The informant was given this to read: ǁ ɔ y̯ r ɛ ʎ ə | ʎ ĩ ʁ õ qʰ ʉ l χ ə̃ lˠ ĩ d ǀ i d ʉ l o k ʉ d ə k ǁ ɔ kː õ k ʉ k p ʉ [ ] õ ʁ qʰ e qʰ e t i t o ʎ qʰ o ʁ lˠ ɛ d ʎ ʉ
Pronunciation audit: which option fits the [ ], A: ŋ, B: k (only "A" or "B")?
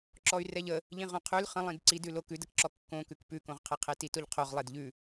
B